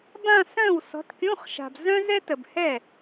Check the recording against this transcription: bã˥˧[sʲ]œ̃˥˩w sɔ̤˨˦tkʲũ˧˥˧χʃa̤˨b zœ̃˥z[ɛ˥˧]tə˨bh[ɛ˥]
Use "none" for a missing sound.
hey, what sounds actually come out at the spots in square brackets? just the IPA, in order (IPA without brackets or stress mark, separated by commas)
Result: s, ɛ˥, ɛ˥˩